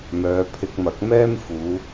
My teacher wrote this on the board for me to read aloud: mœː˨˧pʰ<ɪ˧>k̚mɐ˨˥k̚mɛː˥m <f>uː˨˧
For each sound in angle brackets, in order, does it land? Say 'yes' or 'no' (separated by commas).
yes, yes